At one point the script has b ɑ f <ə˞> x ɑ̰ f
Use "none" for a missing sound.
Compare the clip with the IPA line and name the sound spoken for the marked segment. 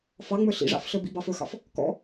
ə˞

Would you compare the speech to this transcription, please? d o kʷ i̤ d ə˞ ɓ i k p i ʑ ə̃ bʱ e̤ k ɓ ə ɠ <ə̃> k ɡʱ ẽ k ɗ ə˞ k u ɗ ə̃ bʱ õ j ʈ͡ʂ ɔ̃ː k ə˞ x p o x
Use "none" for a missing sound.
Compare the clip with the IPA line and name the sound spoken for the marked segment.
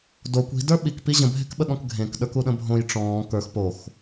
ɔ̃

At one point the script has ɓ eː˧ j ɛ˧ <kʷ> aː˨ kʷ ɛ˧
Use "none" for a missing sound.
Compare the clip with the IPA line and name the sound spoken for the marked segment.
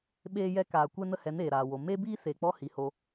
k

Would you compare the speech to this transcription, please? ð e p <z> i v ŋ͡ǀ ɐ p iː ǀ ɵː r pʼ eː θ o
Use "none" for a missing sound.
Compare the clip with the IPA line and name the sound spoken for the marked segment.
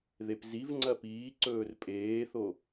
z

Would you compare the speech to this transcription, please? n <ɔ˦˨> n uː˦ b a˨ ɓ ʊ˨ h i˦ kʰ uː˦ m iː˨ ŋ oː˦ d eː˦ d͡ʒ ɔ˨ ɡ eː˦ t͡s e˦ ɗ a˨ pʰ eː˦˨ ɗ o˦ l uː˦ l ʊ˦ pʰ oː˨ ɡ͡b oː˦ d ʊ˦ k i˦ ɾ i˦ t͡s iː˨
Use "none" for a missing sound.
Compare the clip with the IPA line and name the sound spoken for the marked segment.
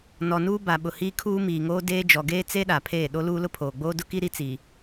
ɔ˨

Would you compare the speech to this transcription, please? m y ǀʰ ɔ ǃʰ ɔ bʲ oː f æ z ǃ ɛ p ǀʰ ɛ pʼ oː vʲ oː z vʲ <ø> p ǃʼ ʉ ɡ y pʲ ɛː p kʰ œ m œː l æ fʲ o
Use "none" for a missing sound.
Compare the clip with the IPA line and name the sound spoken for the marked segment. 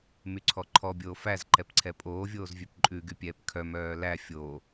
ø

